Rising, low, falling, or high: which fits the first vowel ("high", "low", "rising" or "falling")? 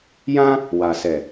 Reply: high